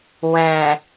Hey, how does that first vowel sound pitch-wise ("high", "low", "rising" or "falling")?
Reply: low